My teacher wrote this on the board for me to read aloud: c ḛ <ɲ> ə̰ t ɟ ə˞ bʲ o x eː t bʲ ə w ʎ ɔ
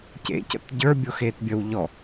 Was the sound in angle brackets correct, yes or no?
no